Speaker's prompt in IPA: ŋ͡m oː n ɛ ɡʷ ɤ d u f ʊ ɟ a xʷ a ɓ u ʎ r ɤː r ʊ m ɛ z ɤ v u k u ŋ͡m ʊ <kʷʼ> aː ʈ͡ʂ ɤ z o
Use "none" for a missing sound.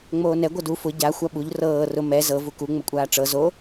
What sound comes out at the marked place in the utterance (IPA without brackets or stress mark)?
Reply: kʷʼ